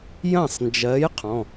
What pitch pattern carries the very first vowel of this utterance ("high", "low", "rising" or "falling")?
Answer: falling